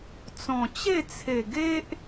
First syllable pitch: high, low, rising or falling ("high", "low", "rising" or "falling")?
low